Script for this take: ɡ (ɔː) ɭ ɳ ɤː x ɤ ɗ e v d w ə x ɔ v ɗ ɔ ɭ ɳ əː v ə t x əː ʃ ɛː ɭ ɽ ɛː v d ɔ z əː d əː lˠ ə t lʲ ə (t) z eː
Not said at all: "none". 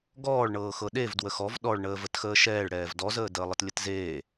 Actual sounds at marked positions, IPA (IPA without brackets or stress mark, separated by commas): ɔː, t